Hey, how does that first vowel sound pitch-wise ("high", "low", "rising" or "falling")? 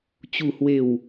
low